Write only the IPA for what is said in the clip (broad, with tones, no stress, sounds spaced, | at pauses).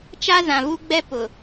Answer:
t͡ʃ a˦ z ã˨ v u˦ ɡ͡b ɛ˦ p ʊ˨